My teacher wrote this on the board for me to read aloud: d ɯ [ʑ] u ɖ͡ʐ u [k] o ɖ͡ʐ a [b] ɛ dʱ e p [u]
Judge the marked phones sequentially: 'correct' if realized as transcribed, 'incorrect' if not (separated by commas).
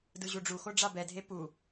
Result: correct, incorrect, correct, correct